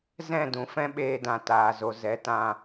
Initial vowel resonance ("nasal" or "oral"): nasal